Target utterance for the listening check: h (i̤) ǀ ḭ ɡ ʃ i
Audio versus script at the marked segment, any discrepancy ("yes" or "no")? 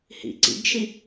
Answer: yes